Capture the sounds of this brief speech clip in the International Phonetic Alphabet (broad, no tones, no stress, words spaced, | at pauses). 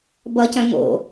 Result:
bʌcœ̃ ŋo̰